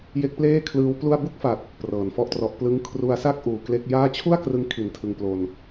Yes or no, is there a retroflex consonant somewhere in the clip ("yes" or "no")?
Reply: no